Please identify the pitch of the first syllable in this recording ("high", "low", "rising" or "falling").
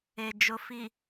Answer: low